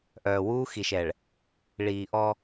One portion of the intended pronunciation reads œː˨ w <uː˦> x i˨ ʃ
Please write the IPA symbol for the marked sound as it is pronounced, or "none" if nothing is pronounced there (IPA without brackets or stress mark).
u˦